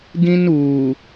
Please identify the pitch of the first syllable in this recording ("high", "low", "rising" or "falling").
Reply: high